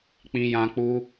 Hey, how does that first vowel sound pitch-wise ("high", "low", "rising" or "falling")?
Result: high